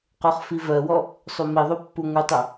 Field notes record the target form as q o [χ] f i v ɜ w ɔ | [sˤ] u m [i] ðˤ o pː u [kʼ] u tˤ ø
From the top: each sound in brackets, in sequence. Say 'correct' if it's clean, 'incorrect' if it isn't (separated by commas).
correct, correct, correct, incorrect